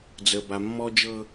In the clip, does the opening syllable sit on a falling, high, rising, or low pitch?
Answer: low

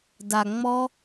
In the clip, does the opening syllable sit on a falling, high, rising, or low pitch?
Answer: low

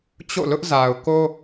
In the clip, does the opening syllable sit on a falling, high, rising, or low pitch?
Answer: falling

